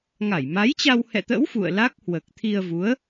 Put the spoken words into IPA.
ŋa˧˩jma˨˦jt͡ɕa˧w hɛ̰˧˨t̪ə̰˧˥w fṵ˧˨ə̯la˦˥k̚ hwəː˨˩k̚t̪ʰi˧ə̯vu˨˦ə̯

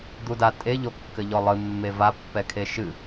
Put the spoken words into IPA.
d̪uda tʼe ʎokːɘʎɔlˠɨ mːeva pːɛkʰeʃɨ

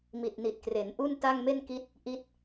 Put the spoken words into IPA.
mi˨˩t̚ni˨˩t̚kre˩˦nʔu˥˩n ta˥˩ŋme˥˩n ki˦˥t̚ | ʔi˦˥t̚

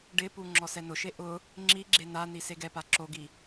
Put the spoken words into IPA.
ɖɪpu ŋ͡ǁɔsɛnʊʃe ʔʊ | ŋ͡ǁiɡ͡ǁe nani seɡɛpa ǁoɡi

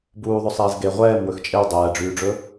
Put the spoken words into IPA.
buːðˤɵsˤeːz ɡe ʁʷɛːm wɵxt͡ʃʼew dˤɛːɖ͡ʐyːɖ͡ʐɵ

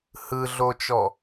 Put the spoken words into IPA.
hɯɮot͡ʃɔ

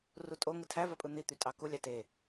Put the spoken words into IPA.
rutʼo ŋɯtʰævɑpʼɯ n̪it̪y tʼɑku lʲɑte

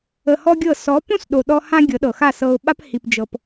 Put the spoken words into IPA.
ə˧hɔ˦ɡʲɤ˦˨ sɔ˨˦põ˦s ɗo˧ɗɔ˦ hã˦ɡʲɤ˨˦ɗɤ˨ xa˦˨sɤ˧ʊ̯ɓa˦p hi˧p d͡ʒɤ˦p

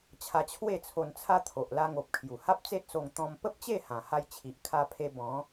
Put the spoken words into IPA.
t͡ɕʰa˧t͡ɕʰwe˥˧t͡sʰo˧nt͡sʰa˦ t̪ʰo˨ʔla˧ŋo˨p̚ kʰju˨˩ha˦p̚t͡se˦t̚so˧ŋ t̪ɔ̃˧m pə˦p̚t͡ɕe˥˧ hã˨˩ha˧jt͡ɕʰi˨ʔ kʰa˧pʰe˧ bɔ̃˨˦

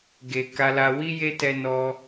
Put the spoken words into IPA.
ɡe˨ ka˧la˧ wi˦je˦tɛ˧ nɔ˧

